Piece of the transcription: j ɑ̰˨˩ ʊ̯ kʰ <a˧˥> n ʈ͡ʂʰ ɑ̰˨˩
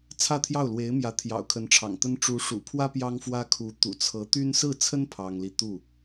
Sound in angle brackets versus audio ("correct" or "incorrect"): incorrect